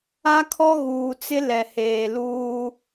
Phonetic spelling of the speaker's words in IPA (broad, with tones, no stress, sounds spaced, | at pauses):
a˦ kʰ ɔ˦ ɣ uː˨ t͡s ɪ˦ l ɛ˨ h eː˨ l uː˦